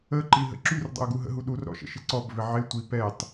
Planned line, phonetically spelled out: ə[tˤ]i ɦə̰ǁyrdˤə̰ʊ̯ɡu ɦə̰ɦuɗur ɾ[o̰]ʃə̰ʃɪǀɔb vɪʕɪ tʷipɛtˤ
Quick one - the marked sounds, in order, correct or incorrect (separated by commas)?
incorrect, incorrect